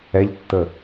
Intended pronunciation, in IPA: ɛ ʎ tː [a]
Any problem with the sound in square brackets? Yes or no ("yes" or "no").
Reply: yes